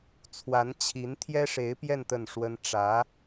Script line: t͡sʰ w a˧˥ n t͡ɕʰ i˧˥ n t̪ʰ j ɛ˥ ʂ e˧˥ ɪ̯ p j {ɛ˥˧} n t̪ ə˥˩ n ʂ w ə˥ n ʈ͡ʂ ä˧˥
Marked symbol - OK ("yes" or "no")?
yes